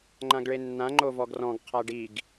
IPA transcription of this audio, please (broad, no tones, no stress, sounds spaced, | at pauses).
ŋ͡ǃ ã ɡ ɭ e nː ã ŋ͡ǃ o v ɔ ɡ r ɔ̃ ɡ qʰ a ɖ i ɡ